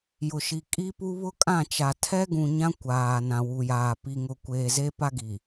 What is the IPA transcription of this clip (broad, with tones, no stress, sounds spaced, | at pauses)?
j ʊ˨ ʃ i˨ kʼ i˦ p u˦ β ʊ˦ kʼ ã˦˨ t͡ʃ a˨ tʰ ɛ˦ ɡ ũ˨ ɲ ã˦ kʷ aː˨ n ã˨ w u˨ j aː˨ p i˨ ŋ ʊ˨ kʷ eː˨ z e˦ p a˦ ɡ i˨